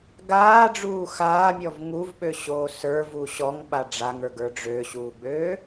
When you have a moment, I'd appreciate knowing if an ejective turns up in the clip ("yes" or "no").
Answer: no